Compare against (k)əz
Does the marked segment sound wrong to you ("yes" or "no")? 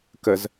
no